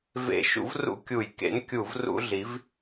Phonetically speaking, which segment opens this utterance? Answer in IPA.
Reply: v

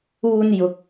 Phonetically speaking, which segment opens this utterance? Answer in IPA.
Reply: uː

